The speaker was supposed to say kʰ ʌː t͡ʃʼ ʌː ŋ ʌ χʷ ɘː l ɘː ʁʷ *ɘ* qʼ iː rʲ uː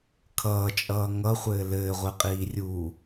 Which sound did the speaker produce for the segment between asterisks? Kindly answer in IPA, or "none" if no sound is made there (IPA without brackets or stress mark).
ɛ